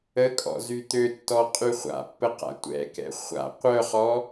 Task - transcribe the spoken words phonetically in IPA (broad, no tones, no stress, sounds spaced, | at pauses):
ə kʼ ɔ̰ z y t̪ ø tː ɔ qʼ y χʷ a̰ pː ə q a̰ tʷ ɛ̰ k ɛ̰ χʷ a̰ qʷ œ χ ɔ